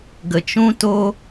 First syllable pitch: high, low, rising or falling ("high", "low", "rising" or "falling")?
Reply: low